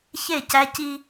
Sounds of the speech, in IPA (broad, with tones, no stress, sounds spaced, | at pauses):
ç e˥˩ c æ˦ c i˦